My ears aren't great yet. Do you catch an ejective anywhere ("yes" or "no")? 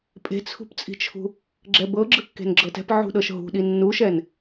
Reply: yes